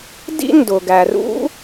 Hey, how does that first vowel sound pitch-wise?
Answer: high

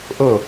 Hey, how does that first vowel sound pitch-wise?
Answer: falling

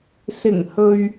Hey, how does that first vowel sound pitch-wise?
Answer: low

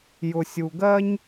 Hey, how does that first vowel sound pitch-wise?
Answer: low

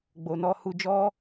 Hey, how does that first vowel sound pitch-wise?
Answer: low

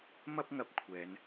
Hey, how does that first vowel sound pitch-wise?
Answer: high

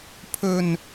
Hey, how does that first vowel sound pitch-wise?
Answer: low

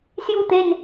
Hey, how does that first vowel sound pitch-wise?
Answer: falling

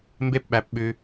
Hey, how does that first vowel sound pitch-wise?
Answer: high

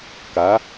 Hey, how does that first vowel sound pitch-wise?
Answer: rising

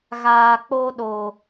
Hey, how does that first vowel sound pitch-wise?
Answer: low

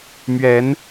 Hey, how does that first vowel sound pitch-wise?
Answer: rising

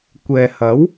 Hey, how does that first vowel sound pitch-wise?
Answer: low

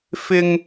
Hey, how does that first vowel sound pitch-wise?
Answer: high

